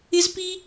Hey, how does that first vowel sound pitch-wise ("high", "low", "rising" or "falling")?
high